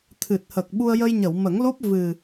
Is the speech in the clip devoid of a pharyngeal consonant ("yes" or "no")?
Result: yes